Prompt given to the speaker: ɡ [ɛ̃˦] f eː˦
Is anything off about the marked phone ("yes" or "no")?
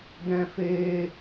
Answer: no